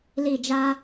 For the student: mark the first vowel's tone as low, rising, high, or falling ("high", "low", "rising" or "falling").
falling